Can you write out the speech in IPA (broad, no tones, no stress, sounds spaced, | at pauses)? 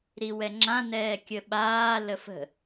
ɾ i w ɛ ŋ͡ǁ ã n ɛː kʲ ə ɓ aː l ə f ə̤